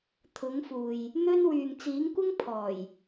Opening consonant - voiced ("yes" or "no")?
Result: no